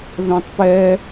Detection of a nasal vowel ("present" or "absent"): present